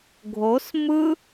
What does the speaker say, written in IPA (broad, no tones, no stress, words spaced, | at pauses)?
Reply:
ɡʱos mɯ